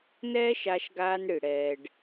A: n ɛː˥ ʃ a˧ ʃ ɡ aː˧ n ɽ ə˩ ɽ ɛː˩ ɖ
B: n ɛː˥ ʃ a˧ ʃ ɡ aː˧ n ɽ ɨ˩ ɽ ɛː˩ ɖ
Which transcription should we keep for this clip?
B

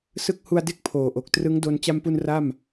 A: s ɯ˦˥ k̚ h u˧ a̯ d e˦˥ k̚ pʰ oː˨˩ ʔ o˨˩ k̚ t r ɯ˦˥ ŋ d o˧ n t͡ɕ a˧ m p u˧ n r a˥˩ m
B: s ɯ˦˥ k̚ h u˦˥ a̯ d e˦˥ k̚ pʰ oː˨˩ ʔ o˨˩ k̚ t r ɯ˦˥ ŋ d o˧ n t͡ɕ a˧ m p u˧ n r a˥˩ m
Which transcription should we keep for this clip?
A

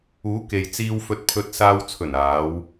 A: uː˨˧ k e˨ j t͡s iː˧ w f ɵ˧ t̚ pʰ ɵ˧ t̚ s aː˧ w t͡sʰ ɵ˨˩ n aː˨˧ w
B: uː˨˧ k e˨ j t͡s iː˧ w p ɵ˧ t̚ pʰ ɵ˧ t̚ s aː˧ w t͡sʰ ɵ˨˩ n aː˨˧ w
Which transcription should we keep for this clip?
A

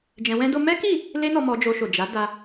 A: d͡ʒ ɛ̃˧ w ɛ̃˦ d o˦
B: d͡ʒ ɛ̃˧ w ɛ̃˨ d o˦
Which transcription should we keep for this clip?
A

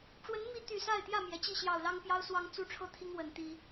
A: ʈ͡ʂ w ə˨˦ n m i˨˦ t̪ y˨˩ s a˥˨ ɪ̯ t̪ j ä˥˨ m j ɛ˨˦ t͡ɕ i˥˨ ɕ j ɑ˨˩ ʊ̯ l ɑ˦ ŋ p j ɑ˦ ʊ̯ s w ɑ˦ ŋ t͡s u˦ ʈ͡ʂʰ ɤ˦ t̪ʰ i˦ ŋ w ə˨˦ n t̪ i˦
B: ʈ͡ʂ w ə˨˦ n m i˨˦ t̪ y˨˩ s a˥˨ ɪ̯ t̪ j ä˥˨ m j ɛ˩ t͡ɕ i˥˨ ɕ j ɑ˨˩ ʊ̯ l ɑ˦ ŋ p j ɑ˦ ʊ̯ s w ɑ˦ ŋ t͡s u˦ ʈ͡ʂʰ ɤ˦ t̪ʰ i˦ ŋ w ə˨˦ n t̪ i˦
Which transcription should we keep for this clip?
B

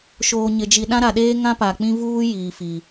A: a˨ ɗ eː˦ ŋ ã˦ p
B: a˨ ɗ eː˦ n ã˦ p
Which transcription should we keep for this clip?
A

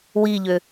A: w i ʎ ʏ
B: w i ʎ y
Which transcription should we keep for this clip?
A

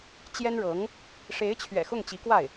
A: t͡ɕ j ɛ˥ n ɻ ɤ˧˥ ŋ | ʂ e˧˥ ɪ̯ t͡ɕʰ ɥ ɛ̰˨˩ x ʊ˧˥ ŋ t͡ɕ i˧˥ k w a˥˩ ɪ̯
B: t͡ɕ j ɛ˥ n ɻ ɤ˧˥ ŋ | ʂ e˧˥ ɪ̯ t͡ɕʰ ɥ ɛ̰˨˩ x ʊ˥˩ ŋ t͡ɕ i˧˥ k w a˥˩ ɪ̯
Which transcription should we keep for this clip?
B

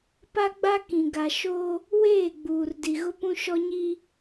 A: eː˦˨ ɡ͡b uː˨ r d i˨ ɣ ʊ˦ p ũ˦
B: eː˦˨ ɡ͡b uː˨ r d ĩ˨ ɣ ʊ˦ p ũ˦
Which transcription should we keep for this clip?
A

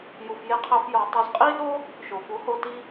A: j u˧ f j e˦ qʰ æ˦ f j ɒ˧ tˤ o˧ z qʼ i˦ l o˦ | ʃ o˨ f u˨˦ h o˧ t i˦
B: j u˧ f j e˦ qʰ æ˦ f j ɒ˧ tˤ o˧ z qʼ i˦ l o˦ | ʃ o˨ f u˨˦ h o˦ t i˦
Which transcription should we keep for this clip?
A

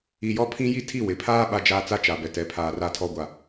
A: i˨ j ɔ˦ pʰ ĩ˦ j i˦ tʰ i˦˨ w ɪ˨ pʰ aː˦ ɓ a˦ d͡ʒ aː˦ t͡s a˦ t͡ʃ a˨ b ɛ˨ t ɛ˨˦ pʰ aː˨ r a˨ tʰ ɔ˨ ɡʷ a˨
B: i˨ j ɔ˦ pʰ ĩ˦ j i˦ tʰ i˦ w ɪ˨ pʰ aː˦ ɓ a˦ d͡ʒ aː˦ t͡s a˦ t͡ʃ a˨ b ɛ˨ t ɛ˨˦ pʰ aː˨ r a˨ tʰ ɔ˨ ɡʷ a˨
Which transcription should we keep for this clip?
A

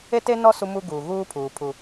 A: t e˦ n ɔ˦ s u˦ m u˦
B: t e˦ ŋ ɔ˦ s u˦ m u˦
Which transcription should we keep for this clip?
A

